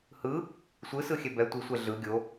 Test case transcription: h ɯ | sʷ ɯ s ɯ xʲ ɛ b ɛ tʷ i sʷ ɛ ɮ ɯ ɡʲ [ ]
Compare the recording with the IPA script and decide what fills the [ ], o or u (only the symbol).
o